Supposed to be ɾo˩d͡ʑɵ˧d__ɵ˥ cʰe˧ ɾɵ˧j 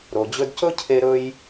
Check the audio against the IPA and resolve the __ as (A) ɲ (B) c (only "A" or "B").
B